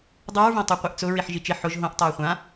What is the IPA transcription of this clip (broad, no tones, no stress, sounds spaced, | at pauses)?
dˤ u ɹ v õ tˤ u qʷ ɛ ʔ t͡s ʊ ɹ i ħ ʒ i t͡ʃ ɪ ħ ʊ ʒ ɦ õ ʔ tˤ oː χʷ ã